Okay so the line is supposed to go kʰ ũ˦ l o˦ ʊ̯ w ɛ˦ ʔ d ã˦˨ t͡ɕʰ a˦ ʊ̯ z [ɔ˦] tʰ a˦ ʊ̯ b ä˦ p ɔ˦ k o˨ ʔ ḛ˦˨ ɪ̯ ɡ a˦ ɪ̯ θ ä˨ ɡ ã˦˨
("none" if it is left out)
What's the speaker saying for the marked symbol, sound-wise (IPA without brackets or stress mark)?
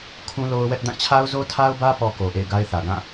o˦